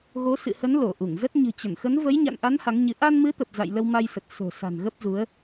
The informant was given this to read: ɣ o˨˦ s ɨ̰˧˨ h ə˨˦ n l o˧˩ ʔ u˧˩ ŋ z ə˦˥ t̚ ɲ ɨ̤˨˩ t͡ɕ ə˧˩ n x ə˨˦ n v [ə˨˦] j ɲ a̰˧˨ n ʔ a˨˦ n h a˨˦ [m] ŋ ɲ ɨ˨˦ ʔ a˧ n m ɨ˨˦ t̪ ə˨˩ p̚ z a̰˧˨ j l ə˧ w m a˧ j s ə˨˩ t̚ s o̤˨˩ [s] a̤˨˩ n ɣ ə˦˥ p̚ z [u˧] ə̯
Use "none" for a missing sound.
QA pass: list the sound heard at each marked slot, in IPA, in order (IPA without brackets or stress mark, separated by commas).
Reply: ə˨˦, none, s, u˨˦